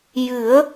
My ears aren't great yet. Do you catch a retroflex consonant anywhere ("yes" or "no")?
no